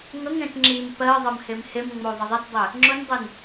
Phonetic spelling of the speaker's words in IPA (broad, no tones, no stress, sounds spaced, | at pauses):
ŋ ə ŋ ẽ t ŋ͡ǁ i m p ɜ ðˤ ə m h e m h e m ŋ͡m o ðˤ ə ðˤ e t dˤ e | ŋ͡ǁ ʊ n dˤ i n